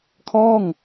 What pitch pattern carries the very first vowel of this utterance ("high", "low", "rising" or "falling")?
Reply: falling